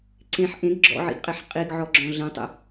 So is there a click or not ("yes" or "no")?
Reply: yes